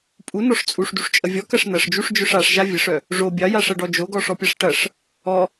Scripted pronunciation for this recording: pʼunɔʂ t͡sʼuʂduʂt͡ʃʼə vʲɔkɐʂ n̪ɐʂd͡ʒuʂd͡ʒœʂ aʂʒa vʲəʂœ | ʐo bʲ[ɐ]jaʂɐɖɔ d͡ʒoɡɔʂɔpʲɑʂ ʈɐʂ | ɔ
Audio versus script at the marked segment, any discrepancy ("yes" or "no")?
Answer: yes